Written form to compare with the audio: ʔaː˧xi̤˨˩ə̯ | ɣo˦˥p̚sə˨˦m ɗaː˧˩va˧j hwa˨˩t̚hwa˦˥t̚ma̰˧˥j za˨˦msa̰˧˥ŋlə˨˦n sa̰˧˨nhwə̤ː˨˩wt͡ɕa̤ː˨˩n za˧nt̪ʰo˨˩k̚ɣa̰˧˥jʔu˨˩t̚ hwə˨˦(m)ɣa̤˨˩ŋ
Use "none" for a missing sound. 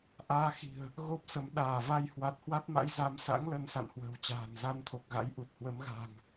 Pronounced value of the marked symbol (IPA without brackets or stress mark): m